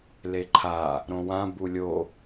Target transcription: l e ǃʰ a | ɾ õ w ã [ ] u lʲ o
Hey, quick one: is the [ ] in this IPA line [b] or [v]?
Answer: b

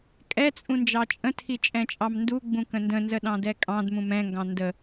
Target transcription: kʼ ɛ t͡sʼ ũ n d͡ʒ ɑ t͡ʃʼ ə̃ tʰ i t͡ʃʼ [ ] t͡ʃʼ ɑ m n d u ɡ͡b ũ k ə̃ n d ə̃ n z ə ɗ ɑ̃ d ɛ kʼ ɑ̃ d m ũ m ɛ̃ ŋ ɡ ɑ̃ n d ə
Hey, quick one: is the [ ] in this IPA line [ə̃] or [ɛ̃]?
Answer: ɛ̃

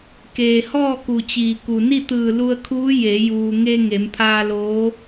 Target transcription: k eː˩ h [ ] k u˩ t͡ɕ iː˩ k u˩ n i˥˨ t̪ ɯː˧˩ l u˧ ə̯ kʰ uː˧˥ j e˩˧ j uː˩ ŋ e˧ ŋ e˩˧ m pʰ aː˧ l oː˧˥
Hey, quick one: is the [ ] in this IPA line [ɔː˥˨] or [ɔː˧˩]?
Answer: ɔː˥˨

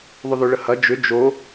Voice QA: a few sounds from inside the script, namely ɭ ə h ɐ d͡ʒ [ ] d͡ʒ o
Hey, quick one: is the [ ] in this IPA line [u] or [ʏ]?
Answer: ʏ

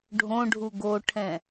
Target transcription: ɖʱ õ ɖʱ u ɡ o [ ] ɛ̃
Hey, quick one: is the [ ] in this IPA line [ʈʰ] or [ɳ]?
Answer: ʈʰ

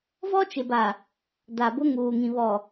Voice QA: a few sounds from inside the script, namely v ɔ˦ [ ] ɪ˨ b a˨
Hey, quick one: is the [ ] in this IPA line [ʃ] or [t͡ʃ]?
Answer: t͡ʃ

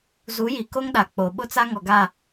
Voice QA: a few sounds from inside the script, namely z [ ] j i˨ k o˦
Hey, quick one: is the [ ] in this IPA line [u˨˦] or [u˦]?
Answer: u˨˦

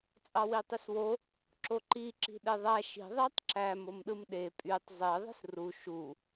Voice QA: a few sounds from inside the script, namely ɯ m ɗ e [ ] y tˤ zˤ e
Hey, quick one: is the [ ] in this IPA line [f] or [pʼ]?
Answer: pʼ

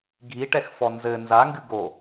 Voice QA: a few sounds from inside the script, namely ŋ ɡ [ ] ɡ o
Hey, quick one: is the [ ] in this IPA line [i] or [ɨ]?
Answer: ɨ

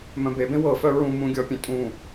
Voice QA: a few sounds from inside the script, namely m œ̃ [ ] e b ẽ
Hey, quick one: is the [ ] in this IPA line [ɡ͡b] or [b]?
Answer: b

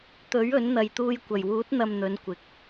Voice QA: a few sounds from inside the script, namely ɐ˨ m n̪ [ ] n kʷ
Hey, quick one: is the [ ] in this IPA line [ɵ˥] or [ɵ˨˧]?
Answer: ɵ˨˧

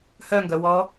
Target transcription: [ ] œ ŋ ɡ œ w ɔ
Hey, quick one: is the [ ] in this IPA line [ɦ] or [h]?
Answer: h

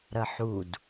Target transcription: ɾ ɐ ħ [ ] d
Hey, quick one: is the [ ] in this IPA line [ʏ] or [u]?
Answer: u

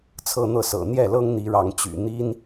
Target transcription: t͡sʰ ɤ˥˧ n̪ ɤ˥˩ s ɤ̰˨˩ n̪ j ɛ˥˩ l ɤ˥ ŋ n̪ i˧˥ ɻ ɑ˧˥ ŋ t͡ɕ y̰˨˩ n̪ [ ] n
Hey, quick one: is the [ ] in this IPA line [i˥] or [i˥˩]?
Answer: i˥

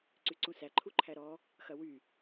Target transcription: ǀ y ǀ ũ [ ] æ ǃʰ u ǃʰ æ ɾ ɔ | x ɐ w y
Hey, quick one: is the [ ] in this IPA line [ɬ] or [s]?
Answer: s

